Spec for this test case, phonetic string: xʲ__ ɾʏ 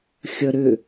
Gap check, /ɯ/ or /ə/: ə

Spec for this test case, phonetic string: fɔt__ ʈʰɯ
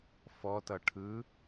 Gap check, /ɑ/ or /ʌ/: ʌ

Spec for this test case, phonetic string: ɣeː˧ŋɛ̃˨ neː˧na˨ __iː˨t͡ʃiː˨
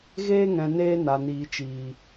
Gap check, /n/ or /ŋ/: n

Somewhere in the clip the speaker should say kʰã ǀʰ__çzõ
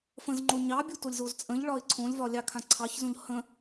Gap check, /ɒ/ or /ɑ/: ɑ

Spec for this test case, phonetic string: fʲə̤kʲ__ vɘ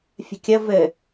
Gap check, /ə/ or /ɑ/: ə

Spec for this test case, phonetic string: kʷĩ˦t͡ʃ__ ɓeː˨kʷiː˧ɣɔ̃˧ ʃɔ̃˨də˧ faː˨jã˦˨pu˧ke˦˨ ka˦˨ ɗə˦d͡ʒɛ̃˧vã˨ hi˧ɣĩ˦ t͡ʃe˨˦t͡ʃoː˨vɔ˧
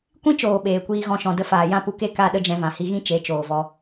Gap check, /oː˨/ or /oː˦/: oː˨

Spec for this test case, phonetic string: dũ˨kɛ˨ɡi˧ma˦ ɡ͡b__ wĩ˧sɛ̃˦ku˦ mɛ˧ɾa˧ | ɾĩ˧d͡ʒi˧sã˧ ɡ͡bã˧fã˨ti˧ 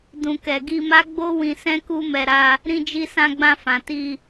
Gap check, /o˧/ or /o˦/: o˦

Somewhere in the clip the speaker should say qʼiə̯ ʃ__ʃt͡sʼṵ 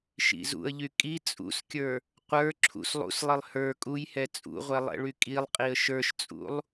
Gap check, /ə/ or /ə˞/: ə˞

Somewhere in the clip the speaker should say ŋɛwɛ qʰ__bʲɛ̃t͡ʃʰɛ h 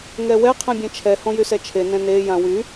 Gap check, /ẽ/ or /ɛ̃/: ẽ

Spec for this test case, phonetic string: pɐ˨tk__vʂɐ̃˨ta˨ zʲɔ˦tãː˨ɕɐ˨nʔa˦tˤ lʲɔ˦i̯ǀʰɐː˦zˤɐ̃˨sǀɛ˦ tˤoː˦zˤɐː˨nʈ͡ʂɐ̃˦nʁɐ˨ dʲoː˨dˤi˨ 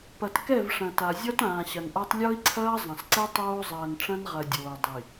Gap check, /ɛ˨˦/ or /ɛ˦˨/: ɛ˦˨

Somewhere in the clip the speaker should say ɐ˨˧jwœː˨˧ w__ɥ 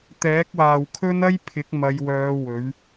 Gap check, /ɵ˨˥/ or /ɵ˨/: ɵ˨˥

